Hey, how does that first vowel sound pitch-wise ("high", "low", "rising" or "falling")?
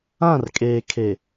falling